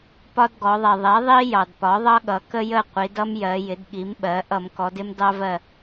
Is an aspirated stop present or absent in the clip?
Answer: absent